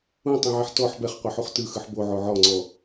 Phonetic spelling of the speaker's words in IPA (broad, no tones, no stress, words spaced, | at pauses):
ũtˤẽʕɛħ tɔħ bɛχqʷɛħuχ tɯxɯħ boʕo ʕɔŋ͡ǀɔ